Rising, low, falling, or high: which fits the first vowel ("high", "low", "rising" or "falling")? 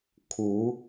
rising